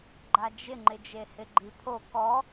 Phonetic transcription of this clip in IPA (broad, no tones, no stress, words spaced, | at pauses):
ɡ͡ǃad͡ʒɪŋ͡ǃɪ d͡ʒehɪɡ͡ǃipʰo kɔ